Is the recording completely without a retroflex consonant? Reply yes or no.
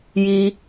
yes